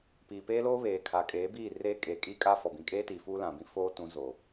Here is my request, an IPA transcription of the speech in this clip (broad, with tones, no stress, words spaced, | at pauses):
piː˨peː˦loː˦βeː˨ kʰa˨kʼeː˨˦biː˦˨ reː˦kʼeː˨kʼiː˦kʼa˦ fɔ˨bĩ˨kʼeː˦tiː˨ fuː˦lã˨ bĩ˦foː˦ tũ˨˦zoː˨